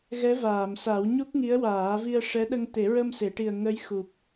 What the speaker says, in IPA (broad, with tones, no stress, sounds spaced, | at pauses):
ɣ ɛ˧˥ v aː˨˩˨ m s a˨˩˦ w ɲ u˦˥ k̚ ŋ i˧˥ ə̯ w aː˨˩˦ v i˧ ə̯ ʂ ɛ˧˥ ɗ ə˧ ŋ t̪ e˨˩˦ ɹ ə˧ m s e˨˩˨ ʈ i˨˩ ə̯ ŋ ə˧˥ j x u˨˩ p̚